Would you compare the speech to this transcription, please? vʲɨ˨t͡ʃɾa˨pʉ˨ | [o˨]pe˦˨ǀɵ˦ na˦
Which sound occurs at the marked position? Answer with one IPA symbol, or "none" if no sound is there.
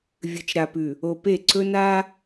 o˨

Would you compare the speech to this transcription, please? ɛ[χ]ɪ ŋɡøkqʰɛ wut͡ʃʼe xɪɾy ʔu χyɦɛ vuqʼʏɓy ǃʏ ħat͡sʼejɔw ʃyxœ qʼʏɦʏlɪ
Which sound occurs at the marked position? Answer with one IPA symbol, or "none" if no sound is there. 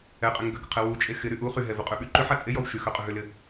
qʼ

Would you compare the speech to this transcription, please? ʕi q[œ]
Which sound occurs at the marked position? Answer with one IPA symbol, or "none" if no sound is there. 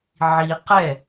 ɛ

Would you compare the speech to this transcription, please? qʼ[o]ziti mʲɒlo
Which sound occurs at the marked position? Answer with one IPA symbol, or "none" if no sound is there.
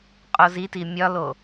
o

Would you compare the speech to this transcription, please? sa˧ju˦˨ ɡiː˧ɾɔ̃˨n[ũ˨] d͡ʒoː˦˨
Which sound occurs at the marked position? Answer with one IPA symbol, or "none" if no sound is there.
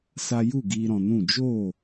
ũ˦˨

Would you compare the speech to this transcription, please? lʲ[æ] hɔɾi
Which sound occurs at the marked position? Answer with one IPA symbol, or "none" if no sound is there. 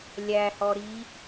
æ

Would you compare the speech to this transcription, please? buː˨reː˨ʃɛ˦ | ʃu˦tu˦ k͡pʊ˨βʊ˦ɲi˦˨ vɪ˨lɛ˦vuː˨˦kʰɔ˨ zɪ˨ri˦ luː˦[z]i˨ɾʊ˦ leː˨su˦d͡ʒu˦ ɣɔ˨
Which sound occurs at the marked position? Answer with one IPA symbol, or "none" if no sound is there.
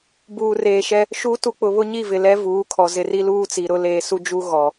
t͡s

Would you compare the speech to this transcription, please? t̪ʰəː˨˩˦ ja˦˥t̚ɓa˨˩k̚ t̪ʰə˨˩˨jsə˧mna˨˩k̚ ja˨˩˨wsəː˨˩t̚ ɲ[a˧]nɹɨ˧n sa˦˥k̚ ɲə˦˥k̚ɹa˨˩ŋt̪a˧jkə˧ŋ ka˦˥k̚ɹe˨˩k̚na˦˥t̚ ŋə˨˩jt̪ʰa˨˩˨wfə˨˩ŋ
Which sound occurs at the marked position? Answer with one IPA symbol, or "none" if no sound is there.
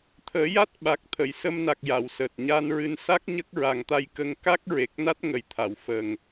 a˧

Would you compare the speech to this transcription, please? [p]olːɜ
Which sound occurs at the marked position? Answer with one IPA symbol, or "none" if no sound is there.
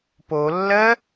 p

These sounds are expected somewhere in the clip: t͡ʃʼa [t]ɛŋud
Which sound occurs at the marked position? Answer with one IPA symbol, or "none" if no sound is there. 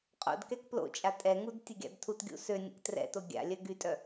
tʼ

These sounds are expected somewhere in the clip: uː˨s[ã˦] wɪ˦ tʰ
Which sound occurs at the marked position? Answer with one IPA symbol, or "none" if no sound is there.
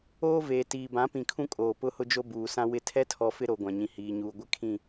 ã˦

